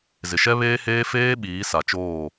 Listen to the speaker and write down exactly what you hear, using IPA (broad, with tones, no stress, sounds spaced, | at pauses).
z ɪ˨ ʃ ɛ˦ β eː˦ h eː˦ f eː˦ ɓ iː˨˦ s a˨ t͡ʃ oː˦˨